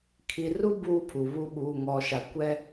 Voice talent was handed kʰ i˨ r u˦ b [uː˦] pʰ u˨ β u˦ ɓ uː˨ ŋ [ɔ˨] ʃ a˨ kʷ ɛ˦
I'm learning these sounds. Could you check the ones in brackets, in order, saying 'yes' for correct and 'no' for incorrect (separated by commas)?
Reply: yes, yes